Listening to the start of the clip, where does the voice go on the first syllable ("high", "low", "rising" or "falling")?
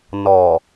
low